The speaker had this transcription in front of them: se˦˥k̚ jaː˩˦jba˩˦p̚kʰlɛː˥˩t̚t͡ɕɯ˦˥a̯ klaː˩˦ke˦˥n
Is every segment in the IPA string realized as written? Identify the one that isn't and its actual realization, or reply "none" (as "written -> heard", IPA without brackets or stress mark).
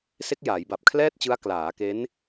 a˩˦ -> a˨˩